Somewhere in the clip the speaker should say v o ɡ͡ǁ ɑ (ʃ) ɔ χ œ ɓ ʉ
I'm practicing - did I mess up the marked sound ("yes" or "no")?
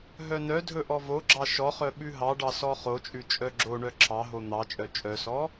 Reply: no